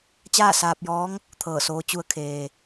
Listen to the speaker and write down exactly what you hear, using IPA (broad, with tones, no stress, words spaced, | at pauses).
t͡ɕaː˥˨saː˧p̚jɔː˧˥ŋ | t̪ʰɤː˧˩soː˧˥ t͡ɕu˧˥ə̯kʰeː˩